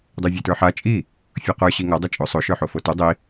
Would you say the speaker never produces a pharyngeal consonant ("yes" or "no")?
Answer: no